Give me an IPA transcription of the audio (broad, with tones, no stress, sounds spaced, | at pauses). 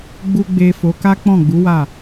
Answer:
ɡ͡b u˨ ɡ͡b e˨ f o˨˦ k a˦ k͡p ɔ̃˦˨ ɡ͡b u˨˦ w a˦˨